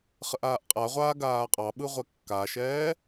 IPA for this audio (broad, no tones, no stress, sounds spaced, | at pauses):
χ ə ʔ aː ʔ qʼ a ʁʷ aː ɡ aː qʼ ɑ ɓ ɯ ʁʷ ɛ kː a ʃ ɛː